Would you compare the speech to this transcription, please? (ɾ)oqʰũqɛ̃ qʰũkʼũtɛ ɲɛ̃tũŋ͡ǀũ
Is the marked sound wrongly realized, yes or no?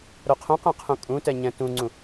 no